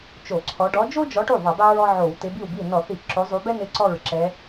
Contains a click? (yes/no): yes